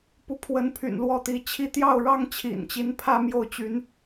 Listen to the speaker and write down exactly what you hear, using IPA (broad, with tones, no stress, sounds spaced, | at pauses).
p u˧˥ pʰ w ə˧˥ n pʰ y̰˨˩ n l w ɔ˥˩ t̪ i˧˥ t͡ɕʰ i˥˧ t̪ j ɑ˥˩ ʊ̯ ɻ ɑ˥ ŋ t͡ɕʰ ḭ˨˩ n t͡ɕ i˧˥ n pʰ ä˥ m j o˥˩ ʊ̯ t͡ɕ y˧˥ n